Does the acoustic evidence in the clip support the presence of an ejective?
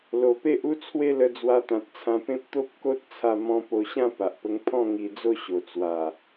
no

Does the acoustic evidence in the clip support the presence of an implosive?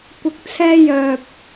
no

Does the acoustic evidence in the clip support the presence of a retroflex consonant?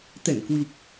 no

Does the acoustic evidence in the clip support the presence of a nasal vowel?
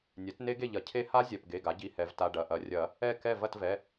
no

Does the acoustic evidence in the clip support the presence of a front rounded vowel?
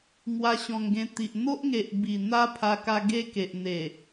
no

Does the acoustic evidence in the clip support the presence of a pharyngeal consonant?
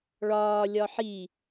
yes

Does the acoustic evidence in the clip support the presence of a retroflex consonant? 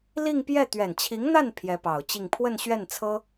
no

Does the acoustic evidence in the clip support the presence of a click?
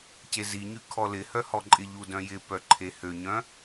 yes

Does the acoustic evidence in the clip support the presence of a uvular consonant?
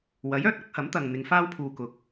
no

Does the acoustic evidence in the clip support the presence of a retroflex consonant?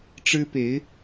yes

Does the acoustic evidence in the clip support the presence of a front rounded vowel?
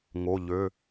yes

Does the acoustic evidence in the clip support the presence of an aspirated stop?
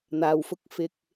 no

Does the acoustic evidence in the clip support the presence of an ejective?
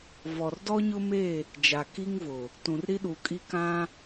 yes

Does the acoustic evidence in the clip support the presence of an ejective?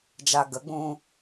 no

